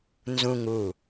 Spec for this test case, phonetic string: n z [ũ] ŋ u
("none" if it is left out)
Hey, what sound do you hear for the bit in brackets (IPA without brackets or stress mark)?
ũ